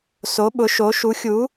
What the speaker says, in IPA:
so˧˥ɓʊ˧˥ʃo˧˥ ʃu˧˥xʲu˧˥

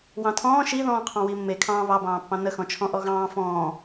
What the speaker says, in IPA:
wɑ̃tʰɔ̃ː ʃi ðɔ̃ːqʰɑ̃wimːe kʰɑ̃ːβɑbɑ̃ːpːɑ̃ nəxɔ̃t͡ʃʰɔ̃ ʔɔɣɑ̃ː fɔ̃ː

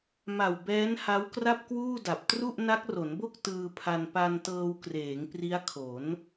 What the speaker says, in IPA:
ma˨˩wbɛː˦˥n ha˦˥wkra˥˩p̚kwuː˥˩ da˨˩p̚ tru˥˩ʔ na˦˥k̚ro˩˦nbo˥˩k̚ tɯː˧pʰa˧n pa˧ntɤː˧wkreː˩˦ŋ pri˦˥a̯kʰo˩˦n

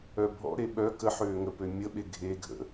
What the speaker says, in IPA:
œbʱɔ̰ɾe ɓœ kə ħøːŋəpø mʲəɓe ɡʱeɡʱə̰

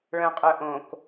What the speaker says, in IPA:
ɭœ̃qʼœʔõk

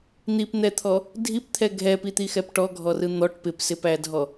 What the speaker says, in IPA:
n̪ipn̪ɛt̪ʰɔ | dʱipt̪ʰɛ ɡʱɛpit̪ixɛp ʈɔɡʱɔrɯ n̪ɔʈ pɪpsɪpædʱɔ

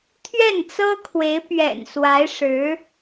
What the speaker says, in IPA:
t̪ʰɥɛ˥˩nt͡sɤ˥kʰwe˧˥ɪ̯pɥɛ̰˨˩n swa˧˥ɪ̯ ʂɻ̩˧˥

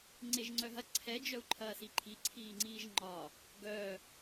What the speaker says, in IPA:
ŋ͡ǀeʒŋ͡ǀœɦɐ ǀʰɛ d͡ʒœu̯ǃʰɐːsiǃʰi ǀʰiːŋ͡ǀiːʒŋ͡ǃɒ | ɡœ

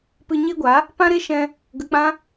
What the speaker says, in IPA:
pɨ˧ɲe˦ɡʷa˨˦ | pã˦ɾe˦ ʃɛ̃˦ | ɡə˧k͡pã˦

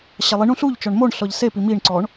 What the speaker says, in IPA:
ɕalˠiɳũ ɬuʎ t͡ʃɔɳmoɳɬɔʎ sepi miɳǀɔɳ

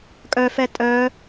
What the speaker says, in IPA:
kʼœfɛ tʼœ

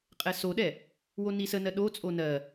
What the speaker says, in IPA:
qʼɛsoɗɛ | wonisənɜ ɗot͡sʼo nɜ

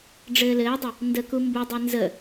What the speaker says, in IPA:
ɖ͡ʐɘːlɘːdˤə | ndə kumbudˤɛ nzə

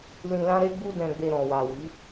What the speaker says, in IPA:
lĩ˧lã˦ɾe˦ɡ͡bu˦ dɛ̃˧ɡ͡be˧ ɾɔ̃˨wa˨wi˨˦

